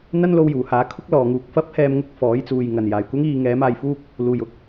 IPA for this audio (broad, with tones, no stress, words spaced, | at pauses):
n̪ɐ˥nlo˧wjuː˨˩haː˨˥ kʰʊ˥k̚lɔː˨ŋuː˨k̚ fɐ˥p̚hɛː˧m ŋʊ˧k̚fɔː˨˥jt͡suː˨j ŋɐ˨˩njaː˨˩jkʷɐ˥ŋiː˧ ŋɛː˨˥maː˧jfuː˥k̚ | luː˨˩jʊ˥k̚